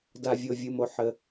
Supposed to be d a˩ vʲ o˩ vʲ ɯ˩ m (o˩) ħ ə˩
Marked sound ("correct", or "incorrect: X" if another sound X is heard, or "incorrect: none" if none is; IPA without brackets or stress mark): correct